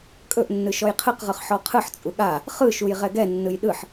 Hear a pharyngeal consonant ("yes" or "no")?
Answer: yes